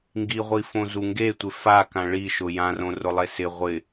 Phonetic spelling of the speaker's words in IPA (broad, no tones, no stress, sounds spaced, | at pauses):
ŋ ɡ i ʁʷ i f õ z u ŋ ɡ e tʷ ɪ f a k ã ɭ i ʃ ʊ j ã r õ r ʊ lˠ e s ɪ ʁʷ ɪ